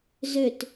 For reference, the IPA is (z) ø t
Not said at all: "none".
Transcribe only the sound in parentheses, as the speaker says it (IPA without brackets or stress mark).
z